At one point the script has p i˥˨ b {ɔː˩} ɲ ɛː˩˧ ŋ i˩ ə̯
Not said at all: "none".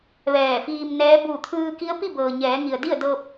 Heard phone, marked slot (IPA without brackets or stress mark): ɤː˩